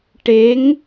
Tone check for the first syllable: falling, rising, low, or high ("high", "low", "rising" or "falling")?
rising